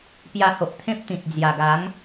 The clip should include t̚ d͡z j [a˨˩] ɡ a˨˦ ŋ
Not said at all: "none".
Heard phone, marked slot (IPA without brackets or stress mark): a˨˩